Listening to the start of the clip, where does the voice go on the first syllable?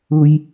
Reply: high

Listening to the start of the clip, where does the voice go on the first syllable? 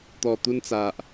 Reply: low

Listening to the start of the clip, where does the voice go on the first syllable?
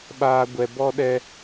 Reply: low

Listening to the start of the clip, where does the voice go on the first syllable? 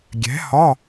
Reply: rising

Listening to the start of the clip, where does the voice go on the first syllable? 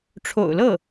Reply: low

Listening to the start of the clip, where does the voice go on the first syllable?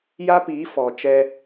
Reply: high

